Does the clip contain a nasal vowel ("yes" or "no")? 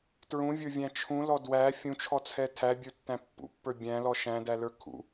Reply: yes